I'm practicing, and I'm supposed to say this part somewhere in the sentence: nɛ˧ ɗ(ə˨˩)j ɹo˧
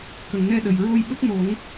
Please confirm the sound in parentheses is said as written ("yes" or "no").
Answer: yes